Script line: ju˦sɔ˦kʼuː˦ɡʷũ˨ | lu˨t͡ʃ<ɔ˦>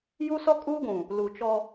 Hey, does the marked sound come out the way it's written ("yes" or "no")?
yes